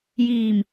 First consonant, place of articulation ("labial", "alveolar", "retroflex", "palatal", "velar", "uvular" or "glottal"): palatal